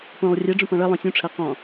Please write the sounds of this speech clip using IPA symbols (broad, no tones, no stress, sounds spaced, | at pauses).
p õ lˠ rʲ ɛ ɖ͡ʐ ũ p ɔ̃ ɭ ʌ lˠ õ sʲ ũ ʈ͡ʂʰ ɜ q ɔ̃